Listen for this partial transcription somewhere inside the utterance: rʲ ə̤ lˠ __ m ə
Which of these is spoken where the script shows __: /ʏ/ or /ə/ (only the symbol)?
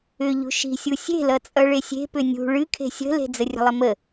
ə